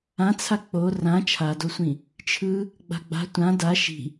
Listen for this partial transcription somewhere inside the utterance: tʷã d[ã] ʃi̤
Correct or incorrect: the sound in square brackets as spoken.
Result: incorrect: a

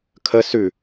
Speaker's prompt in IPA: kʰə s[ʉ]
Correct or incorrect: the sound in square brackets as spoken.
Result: correct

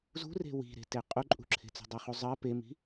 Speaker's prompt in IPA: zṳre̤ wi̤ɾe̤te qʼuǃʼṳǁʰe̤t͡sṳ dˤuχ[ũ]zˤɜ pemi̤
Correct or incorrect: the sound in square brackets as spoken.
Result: incorrect: u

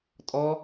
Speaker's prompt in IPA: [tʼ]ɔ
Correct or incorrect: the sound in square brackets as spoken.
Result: correct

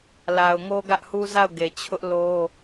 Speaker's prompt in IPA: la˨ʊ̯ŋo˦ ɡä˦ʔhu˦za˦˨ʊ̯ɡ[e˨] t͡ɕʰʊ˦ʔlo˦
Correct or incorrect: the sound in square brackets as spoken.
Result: correct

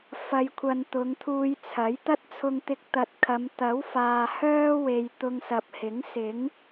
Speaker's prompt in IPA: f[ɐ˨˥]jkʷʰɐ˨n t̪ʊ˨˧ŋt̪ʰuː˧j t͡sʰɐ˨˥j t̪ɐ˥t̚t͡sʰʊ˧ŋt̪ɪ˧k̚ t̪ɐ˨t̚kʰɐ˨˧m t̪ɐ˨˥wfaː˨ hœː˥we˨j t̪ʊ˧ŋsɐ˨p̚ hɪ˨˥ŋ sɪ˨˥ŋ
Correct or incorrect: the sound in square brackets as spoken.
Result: incorrect: ɐ˨˧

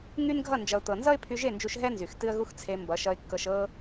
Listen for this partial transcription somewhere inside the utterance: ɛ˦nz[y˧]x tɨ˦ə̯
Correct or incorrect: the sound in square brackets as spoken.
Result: incorrect: y˨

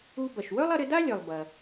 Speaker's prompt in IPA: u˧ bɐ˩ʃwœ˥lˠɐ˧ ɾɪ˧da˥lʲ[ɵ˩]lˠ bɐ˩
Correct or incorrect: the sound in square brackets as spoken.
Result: incorrect: œ˩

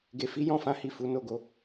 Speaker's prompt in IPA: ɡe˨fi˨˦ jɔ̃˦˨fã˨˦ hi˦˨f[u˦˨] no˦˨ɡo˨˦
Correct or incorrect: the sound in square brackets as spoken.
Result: incorrect: u˨˦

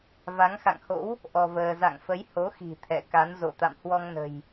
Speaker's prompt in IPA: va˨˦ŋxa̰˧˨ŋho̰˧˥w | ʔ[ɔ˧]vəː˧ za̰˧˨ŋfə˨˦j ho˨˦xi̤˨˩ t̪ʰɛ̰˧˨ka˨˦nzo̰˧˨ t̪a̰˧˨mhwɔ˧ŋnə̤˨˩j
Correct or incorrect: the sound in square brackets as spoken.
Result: correct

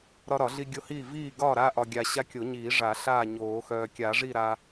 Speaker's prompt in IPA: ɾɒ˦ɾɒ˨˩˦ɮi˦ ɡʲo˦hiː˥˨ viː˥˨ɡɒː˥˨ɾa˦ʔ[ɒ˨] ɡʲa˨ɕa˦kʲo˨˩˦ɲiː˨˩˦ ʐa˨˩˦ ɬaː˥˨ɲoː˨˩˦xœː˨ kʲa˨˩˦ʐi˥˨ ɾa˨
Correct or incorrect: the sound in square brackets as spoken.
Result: correct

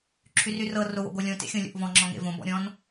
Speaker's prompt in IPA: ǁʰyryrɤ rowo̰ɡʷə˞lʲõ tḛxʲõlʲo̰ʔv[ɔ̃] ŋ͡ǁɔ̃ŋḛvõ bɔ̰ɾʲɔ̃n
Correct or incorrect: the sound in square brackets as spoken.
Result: correct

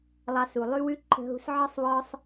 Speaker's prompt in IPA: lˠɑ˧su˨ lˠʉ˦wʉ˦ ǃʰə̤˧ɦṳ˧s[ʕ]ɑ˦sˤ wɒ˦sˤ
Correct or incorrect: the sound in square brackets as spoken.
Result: correct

